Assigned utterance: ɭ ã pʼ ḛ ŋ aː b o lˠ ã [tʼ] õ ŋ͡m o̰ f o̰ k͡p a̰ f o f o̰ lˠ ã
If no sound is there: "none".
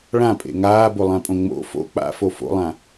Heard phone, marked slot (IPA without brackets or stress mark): pʼ